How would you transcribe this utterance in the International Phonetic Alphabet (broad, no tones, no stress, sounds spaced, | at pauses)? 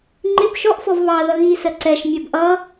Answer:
ŋ͡ǃ ɪ b ʃ ɔ ʔ f ɔ v β ɑ ð ʌ ɣ iː s ɜ ǀ ɛ ʃ mʲ ɜ b ʔ ʌ